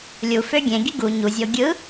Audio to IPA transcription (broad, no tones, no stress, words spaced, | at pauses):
lʲu føɡʲẽɡi ɡu ɲuzʲo ɡʲɯ